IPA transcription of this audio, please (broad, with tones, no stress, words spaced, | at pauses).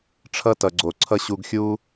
ʈ͡ʂʰʌ˦tʌ˨ɡ͡ǀo˨ǀʰʌ˦ ɕu˧ɡxʲu˦